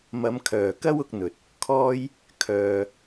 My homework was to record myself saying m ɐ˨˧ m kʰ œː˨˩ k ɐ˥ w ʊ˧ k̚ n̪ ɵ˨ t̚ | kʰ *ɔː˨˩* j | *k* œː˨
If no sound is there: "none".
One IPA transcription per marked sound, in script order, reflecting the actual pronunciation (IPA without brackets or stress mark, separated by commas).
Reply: ɔː˥, kʰ